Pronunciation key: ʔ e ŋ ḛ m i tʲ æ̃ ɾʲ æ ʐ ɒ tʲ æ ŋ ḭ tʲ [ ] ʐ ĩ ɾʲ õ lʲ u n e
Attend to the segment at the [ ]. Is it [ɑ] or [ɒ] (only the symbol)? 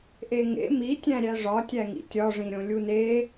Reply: ɒ